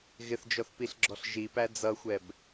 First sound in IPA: ɣ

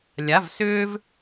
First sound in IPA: lʲ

